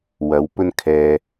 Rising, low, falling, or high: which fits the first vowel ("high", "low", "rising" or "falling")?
rising